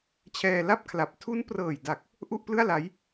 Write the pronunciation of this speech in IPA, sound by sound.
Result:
t͡ɕʰ ɛː˧ l a˥˩ p̚ kʰ l a˨˩ p̚ tʰ u˦˥ n p r ɤː˨˩ j d a˨˩ k̚ | ʔ u˥˩ ʔ p l ɯ˥˩ a̯ l a˦˥ j

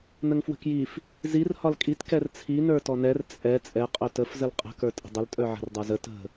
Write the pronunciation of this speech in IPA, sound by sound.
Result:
n ə ŋ f w ə̤ k j i f | z i r h ɒ l kʼ i t k ɛ r t͡sʰ i n ə˞ t ɔ n ɛ r t͡sʼ ɛ t͡sʼ ɛ qʼ œ t ə f z ə l qʼ ə̤ k ə˞ tʼ ə̤ dˤ ə l tʼ œ ʕ ə̤ r dˤ ə˞ z ə t ə̤

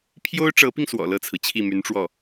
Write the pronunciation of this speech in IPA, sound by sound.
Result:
pʰ j o˥ ʊ̯ ʈ͡ʂ ɤ˧˥ p i˧ ŋ s w ɔ̰˨˩ l ɤ˥˩ t͡sʰ ɹ̩˩ t͡ɕʰ i˥˩ m y˧˥ n ʈ͡ʂ w ɔ˥˩

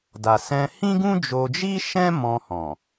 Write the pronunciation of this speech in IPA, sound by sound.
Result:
d a˨ s ɛ̃˧ h ĩ˦ ɡ ũ˦ d͡ʒ o˧ d͡ʒ i˦ ʃ ɛ̃˦ m ɔ̃˧ h ɔ̃˨

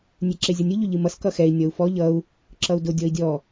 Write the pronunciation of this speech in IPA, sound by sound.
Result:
nʲ e ǁ e zʲ ʌ nʲ ʊ ʎ ʊ ʎ ɨ m ʌ s k ʌ x ɛ i̯ nʲ ʌ u̯ f ɔ ʎ ʌ u̯ | ǁ ʌ u̯ d ʊ dʲ ɔ i̯ dʲ ɔ

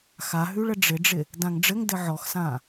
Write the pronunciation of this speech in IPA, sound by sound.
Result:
x a ɦ ʉ ɭ ə ɖ͡ʐ ɪ ɖ͡ʐ ɪ | d ã ŋ ɖ͡ʐ ɘ ŋ d ɘ ʕ ɔ x s ã

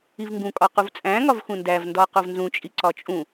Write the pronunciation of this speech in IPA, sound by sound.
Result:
i v ŋ ɡ ũ kʼ ɒ q u v t͡sʼ æ̃ ŋ ɒ v x ũ n d æ v n d ɒ q o v n z ũ t͡ʃʼ i ǀ ɒ t͡ʃʼ ũ

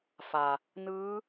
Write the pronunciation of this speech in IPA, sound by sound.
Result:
f a˩ | n ɯː˧˥

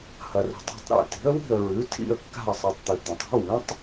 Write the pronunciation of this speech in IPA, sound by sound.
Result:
h ɐ˩ r ṳ˩ tˤ a̤˥˩ tˤ ɾ ḛ˥˩ t i̤˩˥ ə̯ w i̤˥˩ ə̯ ɹ ʉ˩˥ tʰ ḭ˥˩ ə̯ kː a̤˥˩ ə̯ sˤ i˩ tˤ t̪ ʉ˩ t̪ ɐ̃˩ tˤ i̤˩˥ w ĩ˩˥ tˤ

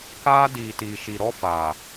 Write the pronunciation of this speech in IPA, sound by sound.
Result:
k aː˦ d iː˨ t iː˨ ʃ i˨ ɾ ɔ˦ f aː˨

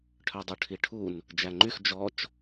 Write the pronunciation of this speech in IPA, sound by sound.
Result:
ʈʰ œ dˤ u ʈʰ i ʈʰ u n | d͡ʒ æ ŋ͡ǃ y x d͡ʒ ɔ t͡ʃ

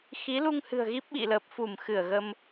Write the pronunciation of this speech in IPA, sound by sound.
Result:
x i˨˦ l u˧ ŋ h ɨ̤˨˩ ə̯ ɣ i˦˥ p̚ ɓ ḭ˧˨ l ə˨˩ p̚ f u˧˩ m x ɨ˧˩ ə̯ ɣ ə˧ m

